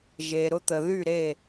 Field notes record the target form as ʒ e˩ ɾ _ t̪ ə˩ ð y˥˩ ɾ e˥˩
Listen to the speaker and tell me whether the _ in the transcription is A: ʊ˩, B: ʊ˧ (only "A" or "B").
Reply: B